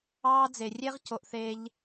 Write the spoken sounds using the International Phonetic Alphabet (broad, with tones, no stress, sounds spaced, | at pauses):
ɑː˥ d͡z e˧ rʲ e˥ ʁ c o˥ ʔ θ eː˥ ʎ